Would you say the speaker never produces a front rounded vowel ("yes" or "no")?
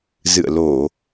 yes